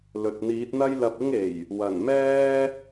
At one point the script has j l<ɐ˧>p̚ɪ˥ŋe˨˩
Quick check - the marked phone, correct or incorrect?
correct